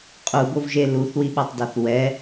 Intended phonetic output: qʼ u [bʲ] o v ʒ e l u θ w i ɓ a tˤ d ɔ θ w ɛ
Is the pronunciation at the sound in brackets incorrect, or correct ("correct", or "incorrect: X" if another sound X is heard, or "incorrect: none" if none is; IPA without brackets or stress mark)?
incorrect: b